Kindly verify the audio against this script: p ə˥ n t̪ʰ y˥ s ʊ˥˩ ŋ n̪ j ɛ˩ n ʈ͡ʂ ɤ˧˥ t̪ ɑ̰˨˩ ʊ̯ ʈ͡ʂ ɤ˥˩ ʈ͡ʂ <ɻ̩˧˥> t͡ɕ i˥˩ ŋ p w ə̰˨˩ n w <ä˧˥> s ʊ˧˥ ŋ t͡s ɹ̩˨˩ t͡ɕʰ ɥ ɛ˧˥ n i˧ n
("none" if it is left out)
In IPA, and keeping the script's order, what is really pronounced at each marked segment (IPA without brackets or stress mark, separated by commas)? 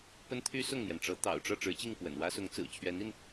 ɻ̩˧˥, ä˥